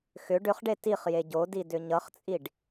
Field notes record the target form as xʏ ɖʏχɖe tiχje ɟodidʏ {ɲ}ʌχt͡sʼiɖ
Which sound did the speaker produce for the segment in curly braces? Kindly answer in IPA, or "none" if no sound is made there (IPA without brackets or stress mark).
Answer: ɲ